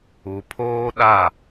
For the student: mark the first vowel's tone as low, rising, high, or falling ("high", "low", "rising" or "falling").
low